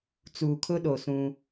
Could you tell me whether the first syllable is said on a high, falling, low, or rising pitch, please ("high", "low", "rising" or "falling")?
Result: low